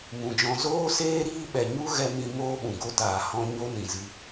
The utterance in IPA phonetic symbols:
mũ˨d͡ʒɔ̃˧ zoː˦seː˦ ɾiː˦ɓɛ˨ ɲu˦ ɣɛ˧mĩ˧ moː˦ɓũ˨ɡo˦taː˨ hɔ̃˧ ɲo˦nĩ˨zɨ˧

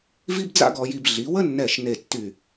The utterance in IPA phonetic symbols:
vi˥bd͡za̰˥ɡɔ˧ji˧b ɮi˩˧wə˥nːɛ˧˩ʃ ne˧˩ tːy˧˩

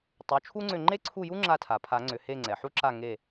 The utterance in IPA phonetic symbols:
tˤu˩˥t͡ʃʰu˥ŋ͡ǀʏ˦˨ ŋ͡ǃe˥ǀʰu˦˨ju˥ ŋ͡ǁa˦˨tʰa˩pʰa˨˩˦ŋ͡ǀʏ˩˧˩ he˦˨ŋ͡ǀɛ˩ħu˥ ǁa˦˨ŋe˦˨

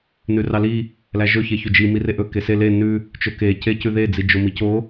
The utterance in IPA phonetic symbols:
nʉrɑli | læʒɵ çeçɵd͡ʒi mireʔɵ kese le nʉ | t͡ʃɵke cecʉðe d͡zid͡ʒomico

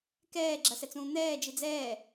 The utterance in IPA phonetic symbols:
kɛːɡ͡ǁɐsɛt͡sũː n̪ɛːd͡ʒi d͡zɛː

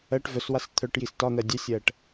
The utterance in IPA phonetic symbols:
ɜʈ vœswas t̪ʰœʈjis tɒn̪ɜ dʲœsʲɜʈ

